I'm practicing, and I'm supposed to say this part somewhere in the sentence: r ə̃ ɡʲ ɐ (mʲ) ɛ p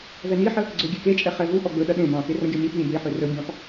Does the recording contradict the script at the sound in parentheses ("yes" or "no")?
no